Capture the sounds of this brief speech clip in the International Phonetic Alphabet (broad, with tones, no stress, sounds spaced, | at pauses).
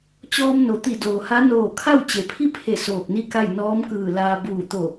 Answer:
t͡ɕ ɔː˧ m n o˩ t̪ i˧˩ d oː˩ h a˧˥ n oː˧˩ kʰ a˥˨ w t͡ɕ e˩ pʰ i˥˨ pʰ e˧˩ s oː˧˩ k̚ n i˥˨ k a˥˨ j n ɔː˧˥ m k ɯː˧˩ l aː˧ b uː˧˩ t̪ o˧˩